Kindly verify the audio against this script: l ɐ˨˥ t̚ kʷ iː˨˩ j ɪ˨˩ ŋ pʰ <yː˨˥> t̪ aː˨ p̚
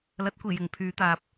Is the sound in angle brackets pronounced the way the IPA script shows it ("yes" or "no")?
no